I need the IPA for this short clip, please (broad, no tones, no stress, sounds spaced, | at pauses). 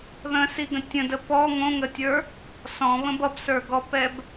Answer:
ð ə̃ s i ɡ ə̃ tʲ ə̃ d ə p ɔ ŋ õ ŋ ə tʲ ə˞ | s ɔ̃ β ə̃ b ʌ b s ə˞ ɡ ɔ p ɛ b